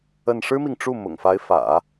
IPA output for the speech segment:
ə˥˩n ʂɻ̩˥mi˨ŋʈ͡ʂu˥˩mʊ̰˨˩ŋ fa˧˥ɪ̯fä̰˨˩˦

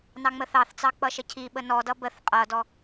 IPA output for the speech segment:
nɑŋ͡məθɑθt͡sɑ k͡pʌʃəcʰiɓə nɔdʌ bəθ qʼʌdɔ

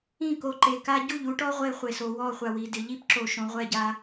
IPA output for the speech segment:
ĩ˦˨ko˨ǃe˨ ka˦ ɟu˦˨ʎu˦ʈɔ˦ ʁʷe˦χʷe˨so˨ wɔ˦˨χʷa˨wi˨dɪ˨ ʎi˦pǁo˨ ʃõ˨ʁʷɛ˦˨ɟa˦

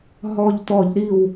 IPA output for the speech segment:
ɦɔ˧˩ʎt̪ɔ˧˩˧ʎɾi˧˩w

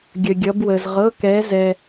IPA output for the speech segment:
ɡʲə˧ɡʲʌ˧˥bwə˧z ʁɤ˧˥˧kɛ˧˥zɛ˧

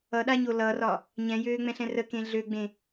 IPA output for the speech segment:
ʌɗaɲo lʌrɒ | ɲɛ̃jøːŋ͡mɛ̃ɬɛ̃ rəkẽ ɮøɡ͡bẽ

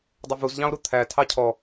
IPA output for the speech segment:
dˤʌvuzʎɑ̃o̯ɾu t̪ʰæ tʰɑcʰɔ

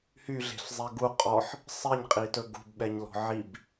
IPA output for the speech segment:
hyɮe̤ɬzˤe ɡu qʼɔħ | sˤiɲqʼitɵ ɡṳbɓɛɲlɔ̤ ʕib

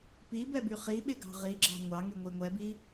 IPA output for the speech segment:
pibɛby χiɓɪɡɑ̤ ʁiɡ͡ǁɑ̤ ŋʷɑŋyŋʷi ŋʷɛbi

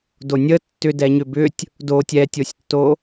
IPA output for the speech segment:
donʲə tːʏdɛɲʏ bʏtʲ | do tʲɛtʲosʲtːo

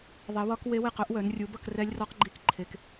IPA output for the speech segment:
ðˤe˨˦wɒ˦˥k we˦˥we˥˨qœ˦˥ʔwœ˨˦n rʲu˨˦bʌ˥˨k rɛ˦˥lʲrɒ˦˥qɡ͡ǃi˦˥k ǃʰe˦˥k

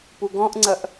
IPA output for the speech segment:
puɡɔ̃ʔŋ͡ǀɐʔ

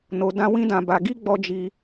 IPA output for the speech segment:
no˧dã˦ wĩ˦dã˧ba˧ ɡi˦ɡ͡bɔ˧ d͡ʒi˦

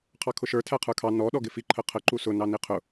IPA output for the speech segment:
qʰɑkʰʊʃə˞ tʰæqʰə˞kʰɑ nɔ ɗɔɡɪfi ǃʰəqʰə ǃusʊ nɑniqʰʊ

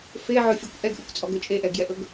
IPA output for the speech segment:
feʕɵfʲɛkʷ ʔɛɡʔəkʷt͡sʼɔɡɵ t͡ʃʼeʔɛɡjɛʔɵɡ

